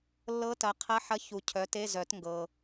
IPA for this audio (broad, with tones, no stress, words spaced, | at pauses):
lːɤ˧˥ tɐ˩˥qʰɐ˧˥˧ħɐ˧˥ çu˨cʰœ˩˥te˧˥˧ zœ˨˩˦tŋɡɤ˨